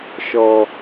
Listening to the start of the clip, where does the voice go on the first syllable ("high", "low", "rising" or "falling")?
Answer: low